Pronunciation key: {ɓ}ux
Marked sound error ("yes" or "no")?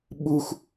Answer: no